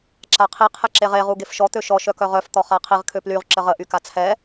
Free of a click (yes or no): no